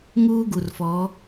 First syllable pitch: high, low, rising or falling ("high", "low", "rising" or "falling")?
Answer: high